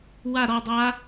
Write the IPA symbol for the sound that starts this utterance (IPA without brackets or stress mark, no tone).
w